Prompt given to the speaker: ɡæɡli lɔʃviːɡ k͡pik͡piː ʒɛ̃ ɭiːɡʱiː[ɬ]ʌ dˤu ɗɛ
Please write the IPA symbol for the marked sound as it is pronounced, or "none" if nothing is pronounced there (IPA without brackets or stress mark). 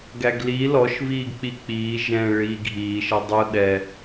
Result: ʃ